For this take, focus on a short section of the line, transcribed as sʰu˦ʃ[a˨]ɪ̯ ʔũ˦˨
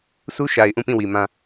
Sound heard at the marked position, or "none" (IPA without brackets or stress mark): a˨